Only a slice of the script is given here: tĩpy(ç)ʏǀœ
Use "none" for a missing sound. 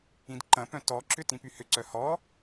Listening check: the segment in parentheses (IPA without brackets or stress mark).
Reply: h